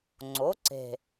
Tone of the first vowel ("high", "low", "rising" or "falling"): rising